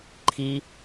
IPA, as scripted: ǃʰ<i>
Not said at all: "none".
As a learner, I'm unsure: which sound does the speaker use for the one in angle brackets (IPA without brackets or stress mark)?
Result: i